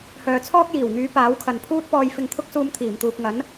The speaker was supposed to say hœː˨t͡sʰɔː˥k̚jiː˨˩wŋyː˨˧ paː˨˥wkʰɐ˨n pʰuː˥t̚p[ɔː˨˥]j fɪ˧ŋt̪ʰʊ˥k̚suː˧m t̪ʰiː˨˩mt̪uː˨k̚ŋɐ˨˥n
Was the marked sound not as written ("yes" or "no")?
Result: yes